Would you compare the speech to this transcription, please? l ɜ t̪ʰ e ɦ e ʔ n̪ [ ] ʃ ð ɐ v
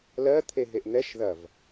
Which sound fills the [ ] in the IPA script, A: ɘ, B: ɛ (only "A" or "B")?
B